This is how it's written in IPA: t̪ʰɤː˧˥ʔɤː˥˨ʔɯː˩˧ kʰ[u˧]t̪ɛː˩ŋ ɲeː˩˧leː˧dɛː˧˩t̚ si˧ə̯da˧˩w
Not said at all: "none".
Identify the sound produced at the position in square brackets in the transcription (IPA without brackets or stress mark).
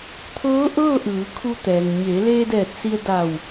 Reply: u˧